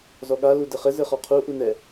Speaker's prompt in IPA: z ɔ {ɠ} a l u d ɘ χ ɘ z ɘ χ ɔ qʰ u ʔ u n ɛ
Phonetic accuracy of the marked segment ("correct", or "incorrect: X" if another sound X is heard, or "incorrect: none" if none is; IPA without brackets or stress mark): correct